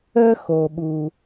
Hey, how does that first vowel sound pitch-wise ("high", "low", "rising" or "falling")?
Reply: high